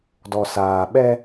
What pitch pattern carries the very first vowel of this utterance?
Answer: low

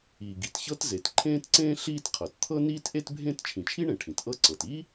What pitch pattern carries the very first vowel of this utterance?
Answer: low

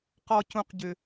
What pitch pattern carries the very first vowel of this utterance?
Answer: low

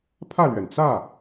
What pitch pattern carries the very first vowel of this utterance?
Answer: falling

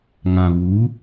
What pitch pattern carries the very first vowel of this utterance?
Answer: low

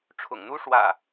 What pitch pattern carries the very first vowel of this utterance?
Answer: low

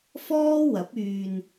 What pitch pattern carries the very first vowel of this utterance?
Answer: high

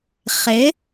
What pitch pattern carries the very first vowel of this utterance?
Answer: rising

